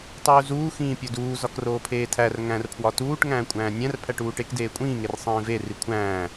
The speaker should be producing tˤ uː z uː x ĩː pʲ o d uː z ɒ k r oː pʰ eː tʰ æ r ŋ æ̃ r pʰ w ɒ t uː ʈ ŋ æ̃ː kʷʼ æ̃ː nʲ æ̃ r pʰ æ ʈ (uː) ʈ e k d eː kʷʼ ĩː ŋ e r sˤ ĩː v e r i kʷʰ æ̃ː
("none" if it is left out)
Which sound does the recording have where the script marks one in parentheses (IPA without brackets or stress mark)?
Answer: uː